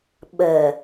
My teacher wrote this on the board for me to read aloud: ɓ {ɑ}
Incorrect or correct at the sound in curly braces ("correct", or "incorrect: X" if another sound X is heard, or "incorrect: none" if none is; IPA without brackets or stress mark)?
incorrect: ə